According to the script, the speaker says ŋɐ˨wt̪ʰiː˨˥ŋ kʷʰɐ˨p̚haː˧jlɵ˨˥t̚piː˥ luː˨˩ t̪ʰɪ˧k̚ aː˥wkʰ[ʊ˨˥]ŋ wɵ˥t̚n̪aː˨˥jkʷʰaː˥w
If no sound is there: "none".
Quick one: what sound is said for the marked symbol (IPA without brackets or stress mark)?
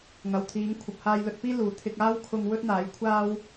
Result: ʊ˧